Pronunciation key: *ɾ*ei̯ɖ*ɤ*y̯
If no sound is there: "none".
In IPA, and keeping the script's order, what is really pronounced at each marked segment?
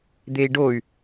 d̪, o

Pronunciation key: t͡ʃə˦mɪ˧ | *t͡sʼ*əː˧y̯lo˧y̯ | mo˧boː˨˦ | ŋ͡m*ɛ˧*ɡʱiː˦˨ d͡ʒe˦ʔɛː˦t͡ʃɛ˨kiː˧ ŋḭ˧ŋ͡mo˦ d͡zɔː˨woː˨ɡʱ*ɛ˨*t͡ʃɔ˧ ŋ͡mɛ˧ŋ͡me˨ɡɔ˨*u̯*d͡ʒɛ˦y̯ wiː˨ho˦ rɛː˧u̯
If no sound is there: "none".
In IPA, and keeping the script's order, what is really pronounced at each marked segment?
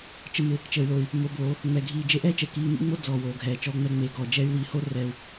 t͡ʃ, ɛ˧, ɛː˨, none

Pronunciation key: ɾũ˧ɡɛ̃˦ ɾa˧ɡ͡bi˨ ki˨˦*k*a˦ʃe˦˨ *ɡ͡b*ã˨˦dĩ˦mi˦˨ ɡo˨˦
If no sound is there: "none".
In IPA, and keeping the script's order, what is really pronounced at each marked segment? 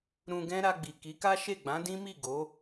k, ɡ͡b

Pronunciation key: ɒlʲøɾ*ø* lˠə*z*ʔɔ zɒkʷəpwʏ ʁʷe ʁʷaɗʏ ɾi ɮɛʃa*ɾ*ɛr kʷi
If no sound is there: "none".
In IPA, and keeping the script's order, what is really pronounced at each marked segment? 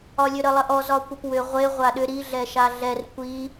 ə, none, ɮ

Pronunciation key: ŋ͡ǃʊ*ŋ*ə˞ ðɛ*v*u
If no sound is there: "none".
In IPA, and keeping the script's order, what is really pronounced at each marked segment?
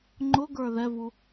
ɡ, v

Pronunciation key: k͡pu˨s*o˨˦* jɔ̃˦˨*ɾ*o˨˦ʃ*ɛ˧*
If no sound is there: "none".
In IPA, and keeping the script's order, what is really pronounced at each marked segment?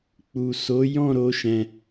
o˨˦, ɾ, ɛ̃˧

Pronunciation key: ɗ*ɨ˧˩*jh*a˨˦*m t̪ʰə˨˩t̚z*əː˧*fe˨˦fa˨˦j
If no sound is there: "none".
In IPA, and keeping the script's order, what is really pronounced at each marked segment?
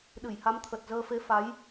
ɨ˧˩, a˨˦, əː˧

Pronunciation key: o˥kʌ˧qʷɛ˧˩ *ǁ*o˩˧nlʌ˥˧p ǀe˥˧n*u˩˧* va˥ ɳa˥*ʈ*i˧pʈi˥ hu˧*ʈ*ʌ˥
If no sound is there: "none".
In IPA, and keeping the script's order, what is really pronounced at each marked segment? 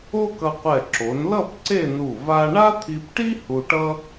ǁ, u˧˩, t̪ʰ, ʈ

